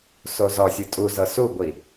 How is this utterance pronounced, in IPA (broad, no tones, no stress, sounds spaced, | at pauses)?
s o z ɔ sʲ ɯ tʼ u z ɤ s u ɡʷ i